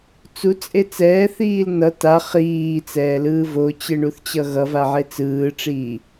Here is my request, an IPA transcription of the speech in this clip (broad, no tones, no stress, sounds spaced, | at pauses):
t͡s u t͡sʼ e t͡s ɛː θ iː l n ʌ t a χ iː t͡s ɛː l ɯː v o t͡ɕ ɯ ɳ u θ t͡ɕ ʌ ɣ ʌ v a ʕ e t͡s ɯː ʈ͡ʂ iː